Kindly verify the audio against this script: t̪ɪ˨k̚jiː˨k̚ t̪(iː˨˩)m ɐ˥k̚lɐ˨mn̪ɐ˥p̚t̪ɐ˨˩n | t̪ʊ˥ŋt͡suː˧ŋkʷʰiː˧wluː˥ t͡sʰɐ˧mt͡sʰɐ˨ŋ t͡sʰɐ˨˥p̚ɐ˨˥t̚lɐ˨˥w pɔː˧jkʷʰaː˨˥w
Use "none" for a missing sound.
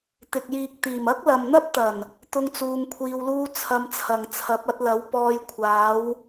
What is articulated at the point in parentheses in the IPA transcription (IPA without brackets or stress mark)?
iː˨˩